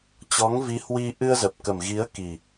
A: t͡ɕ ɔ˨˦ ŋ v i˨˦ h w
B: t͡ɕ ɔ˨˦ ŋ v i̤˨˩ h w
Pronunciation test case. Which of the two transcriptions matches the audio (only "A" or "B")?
A